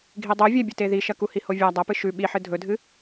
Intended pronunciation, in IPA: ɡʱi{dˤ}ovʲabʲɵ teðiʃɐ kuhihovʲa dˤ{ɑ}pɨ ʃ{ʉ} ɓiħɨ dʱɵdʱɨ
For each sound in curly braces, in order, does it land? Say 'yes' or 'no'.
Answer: yes, no, yes

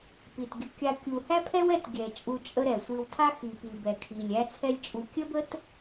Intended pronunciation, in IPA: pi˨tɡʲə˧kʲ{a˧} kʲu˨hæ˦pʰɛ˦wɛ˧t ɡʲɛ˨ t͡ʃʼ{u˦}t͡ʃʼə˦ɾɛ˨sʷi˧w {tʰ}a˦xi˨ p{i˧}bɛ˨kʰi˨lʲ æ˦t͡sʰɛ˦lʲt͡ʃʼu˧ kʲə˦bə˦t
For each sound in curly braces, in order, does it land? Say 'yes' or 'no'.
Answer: yes, no, yes, no

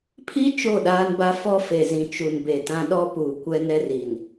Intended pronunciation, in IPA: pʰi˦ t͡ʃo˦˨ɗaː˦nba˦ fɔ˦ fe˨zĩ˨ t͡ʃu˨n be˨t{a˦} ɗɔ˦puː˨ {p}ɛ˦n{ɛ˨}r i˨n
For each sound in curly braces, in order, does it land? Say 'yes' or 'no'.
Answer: no, no, no

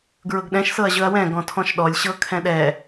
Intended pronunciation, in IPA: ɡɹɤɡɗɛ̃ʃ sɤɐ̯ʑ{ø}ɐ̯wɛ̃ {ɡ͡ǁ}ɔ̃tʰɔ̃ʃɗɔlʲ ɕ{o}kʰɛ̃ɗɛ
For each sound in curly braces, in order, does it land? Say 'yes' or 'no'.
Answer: no, no, no

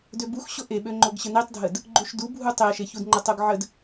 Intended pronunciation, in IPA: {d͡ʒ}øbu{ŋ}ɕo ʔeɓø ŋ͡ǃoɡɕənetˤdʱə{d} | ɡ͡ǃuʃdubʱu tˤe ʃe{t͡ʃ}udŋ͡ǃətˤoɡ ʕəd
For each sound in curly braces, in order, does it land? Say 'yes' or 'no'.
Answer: no, no, yes, no

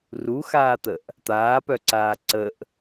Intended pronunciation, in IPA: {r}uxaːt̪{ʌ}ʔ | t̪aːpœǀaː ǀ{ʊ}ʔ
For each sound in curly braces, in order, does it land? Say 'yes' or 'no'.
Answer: yes, no, no

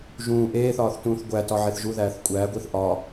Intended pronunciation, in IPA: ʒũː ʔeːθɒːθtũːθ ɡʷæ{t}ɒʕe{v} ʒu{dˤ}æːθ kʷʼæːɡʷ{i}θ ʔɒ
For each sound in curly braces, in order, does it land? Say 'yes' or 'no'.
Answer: yes, no, no, yes

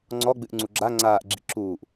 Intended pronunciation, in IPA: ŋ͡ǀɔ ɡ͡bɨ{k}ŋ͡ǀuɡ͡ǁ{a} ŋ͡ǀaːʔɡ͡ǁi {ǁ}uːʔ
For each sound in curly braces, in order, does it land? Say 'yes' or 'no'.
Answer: no, yes, yes

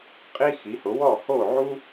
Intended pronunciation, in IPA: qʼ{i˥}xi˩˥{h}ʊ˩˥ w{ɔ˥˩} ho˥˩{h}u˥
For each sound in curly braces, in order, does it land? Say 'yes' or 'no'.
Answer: yes, yes, yes, no

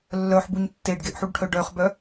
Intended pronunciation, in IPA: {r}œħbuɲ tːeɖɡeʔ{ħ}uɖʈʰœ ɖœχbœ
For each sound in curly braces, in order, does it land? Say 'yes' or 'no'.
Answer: no, yes

